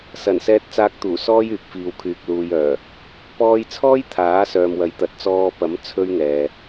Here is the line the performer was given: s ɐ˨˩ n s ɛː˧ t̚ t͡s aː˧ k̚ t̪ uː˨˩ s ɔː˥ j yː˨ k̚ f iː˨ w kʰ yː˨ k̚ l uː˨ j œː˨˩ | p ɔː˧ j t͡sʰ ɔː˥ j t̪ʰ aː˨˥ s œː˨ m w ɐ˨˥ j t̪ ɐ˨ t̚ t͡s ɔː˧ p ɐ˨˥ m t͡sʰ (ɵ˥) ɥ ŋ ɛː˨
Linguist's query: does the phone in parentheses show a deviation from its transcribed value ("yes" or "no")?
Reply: no